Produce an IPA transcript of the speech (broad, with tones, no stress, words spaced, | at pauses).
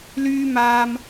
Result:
lyː˥ maː˧m